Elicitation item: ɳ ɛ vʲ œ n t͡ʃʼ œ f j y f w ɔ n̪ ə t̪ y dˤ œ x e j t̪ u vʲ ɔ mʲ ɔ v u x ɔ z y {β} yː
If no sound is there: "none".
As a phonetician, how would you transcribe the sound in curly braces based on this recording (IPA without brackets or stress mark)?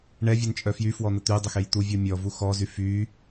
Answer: f